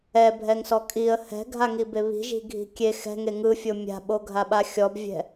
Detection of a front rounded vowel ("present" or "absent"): absent